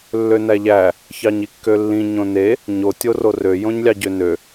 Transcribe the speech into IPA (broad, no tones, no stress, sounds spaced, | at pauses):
lː ø n æ ʎ æ | ç ɑ ɲ i kː ø lː ĩ ɲ õ n e | ɲ o tʲ o r o r ø j õ ɲ lʲ ɑ ɟ ø n ø